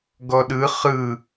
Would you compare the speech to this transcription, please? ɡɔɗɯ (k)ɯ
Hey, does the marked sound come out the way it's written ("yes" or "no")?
no